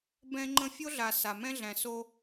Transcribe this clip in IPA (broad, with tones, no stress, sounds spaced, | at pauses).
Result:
b ɛ̃˦ ŋ͡ǃ ə̃˦ fʲ o˦ ɮ a˨ s a˨ m ɛ̃˦ ɮ æ̃˨ s o˦